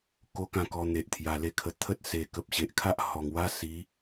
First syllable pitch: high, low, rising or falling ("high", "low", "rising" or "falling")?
high